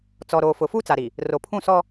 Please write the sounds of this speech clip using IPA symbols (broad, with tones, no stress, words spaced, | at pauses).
t͡sɔ˨ɾoː˨fʊ˨ fu˦t͡sa˨ɾi˨ | ro˨pʰũ˦˨sɔ˦